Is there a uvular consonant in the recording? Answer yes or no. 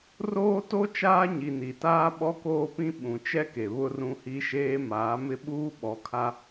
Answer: no